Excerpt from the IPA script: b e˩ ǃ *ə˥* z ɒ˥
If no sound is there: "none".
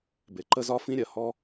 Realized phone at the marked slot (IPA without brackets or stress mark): ə˥